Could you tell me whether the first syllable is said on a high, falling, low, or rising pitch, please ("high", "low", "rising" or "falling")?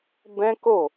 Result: high